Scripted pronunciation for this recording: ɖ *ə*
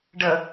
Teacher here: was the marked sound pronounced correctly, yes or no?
yes